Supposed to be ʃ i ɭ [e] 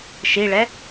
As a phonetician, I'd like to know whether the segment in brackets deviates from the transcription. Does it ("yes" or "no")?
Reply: yes